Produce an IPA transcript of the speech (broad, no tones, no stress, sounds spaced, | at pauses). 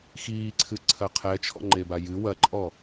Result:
x iː ǀʰ ɨ ǀʰ ɐ qʰ ɛ t͡ʃʰ ɔ̰ ŋ͡ǃ e b a j ɨ w ɐ ǃʼ ɔ